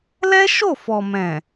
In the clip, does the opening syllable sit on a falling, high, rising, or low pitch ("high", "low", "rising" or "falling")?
high